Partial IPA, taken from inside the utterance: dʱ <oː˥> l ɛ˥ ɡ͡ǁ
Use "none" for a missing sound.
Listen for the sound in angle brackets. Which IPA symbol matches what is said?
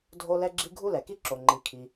o˥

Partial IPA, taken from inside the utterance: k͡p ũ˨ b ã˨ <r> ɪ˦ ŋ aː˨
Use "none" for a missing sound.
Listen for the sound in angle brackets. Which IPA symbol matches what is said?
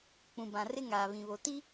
r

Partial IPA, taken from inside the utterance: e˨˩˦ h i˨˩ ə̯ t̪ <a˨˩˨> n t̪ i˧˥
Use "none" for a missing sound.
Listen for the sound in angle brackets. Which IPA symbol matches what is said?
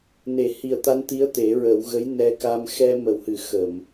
a˧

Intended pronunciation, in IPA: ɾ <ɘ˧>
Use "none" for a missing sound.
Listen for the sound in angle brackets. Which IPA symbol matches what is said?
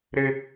ɘ˧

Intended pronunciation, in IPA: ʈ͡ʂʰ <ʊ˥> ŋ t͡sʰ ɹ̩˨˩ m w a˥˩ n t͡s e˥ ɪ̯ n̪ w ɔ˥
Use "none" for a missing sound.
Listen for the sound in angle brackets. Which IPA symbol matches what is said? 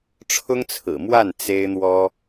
ʊ˥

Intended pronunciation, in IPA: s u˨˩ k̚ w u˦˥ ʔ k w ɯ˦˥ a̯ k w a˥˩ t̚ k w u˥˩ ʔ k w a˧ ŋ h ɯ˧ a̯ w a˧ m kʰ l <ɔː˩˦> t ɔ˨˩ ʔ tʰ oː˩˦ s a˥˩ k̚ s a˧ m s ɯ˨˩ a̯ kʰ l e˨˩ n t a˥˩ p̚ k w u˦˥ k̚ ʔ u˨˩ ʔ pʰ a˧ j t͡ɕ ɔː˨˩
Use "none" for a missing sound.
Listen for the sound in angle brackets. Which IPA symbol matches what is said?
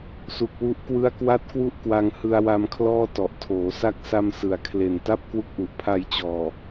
ɔː˥˩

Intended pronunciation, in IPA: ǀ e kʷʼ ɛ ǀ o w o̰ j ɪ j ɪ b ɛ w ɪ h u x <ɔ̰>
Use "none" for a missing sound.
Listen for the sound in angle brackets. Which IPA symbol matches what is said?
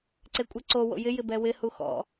ɔ̰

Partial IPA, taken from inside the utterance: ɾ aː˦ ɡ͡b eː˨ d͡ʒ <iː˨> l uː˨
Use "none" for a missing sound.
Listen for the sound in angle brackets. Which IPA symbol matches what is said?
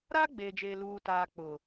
eː˨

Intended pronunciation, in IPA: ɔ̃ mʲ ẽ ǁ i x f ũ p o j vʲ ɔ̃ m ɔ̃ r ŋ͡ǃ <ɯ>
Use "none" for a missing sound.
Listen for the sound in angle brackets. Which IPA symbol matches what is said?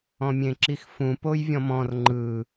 ɯ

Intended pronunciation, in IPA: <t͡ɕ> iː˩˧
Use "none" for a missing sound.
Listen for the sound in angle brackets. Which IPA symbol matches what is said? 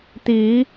t̪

